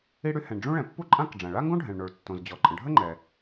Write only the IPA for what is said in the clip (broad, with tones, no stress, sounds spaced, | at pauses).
i˥ ɽ y˥ h ɛ̃˩ ɳ ɖ͡ʐ ũ˥ ɭ ɛ̃˩ pː u˥ ǃʼ ã˥ k ɖ͡ʐ ã˩ ɭ a˥ ŋ ɡ õ˥ ɖʱ ɛ̃˩ ɭ ɳ o˩ ɭ tː õ˩ z d͡ʑ ɔ˩ ǃʼ ə̃˩ ɖʱ ə˥ ŋ͡ǃ ɛ˩